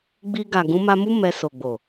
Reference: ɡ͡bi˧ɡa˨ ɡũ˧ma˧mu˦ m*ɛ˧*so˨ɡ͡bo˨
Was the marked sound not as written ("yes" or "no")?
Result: no